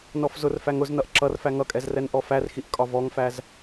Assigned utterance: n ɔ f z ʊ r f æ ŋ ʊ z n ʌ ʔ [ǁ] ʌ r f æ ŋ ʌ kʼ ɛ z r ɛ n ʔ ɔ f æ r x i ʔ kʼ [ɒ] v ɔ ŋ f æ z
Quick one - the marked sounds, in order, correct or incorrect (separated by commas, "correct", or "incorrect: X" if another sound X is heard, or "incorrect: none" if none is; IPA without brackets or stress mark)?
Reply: correct, correct